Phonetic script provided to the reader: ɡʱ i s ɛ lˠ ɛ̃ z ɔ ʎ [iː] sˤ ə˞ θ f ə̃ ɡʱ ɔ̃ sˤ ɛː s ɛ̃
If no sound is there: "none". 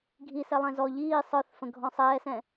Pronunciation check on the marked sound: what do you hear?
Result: iː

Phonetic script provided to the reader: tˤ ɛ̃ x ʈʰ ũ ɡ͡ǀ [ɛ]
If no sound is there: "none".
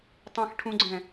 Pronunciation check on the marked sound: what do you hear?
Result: ɛ̃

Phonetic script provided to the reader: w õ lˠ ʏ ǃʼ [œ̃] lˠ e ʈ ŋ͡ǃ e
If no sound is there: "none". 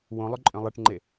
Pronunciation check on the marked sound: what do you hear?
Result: œ̃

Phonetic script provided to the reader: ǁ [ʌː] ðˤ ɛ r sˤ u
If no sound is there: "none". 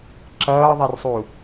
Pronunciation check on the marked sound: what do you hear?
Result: ʌː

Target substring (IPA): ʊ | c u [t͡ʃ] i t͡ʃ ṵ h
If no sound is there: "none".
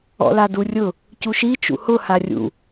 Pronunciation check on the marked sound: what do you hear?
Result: ʃ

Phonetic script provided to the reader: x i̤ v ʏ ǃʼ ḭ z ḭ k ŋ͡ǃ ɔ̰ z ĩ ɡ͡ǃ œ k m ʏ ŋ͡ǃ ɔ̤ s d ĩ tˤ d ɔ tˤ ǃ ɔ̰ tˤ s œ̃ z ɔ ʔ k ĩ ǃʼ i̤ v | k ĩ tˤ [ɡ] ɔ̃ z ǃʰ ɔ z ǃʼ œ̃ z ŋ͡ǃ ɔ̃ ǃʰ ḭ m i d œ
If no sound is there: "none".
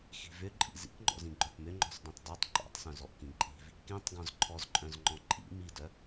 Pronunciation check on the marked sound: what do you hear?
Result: ɡ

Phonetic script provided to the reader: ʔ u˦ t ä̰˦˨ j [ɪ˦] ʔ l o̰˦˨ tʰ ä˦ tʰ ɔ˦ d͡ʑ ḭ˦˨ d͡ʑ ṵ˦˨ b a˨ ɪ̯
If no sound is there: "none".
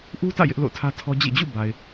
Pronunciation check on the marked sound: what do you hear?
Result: ɪ˦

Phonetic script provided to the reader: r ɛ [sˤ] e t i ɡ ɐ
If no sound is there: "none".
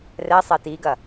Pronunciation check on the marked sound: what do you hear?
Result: sˤ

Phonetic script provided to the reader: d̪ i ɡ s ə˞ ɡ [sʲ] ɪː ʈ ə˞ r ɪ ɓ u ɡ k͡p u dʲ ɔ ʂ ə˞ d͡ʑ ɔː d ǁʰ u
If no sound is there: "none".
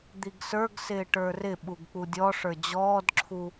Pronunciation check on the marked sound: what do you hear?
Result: s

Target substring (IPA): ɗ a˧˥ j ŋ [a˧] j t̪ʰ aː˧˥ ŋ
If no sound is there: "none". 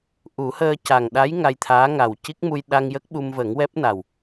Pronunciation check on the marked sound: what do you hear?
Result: a˧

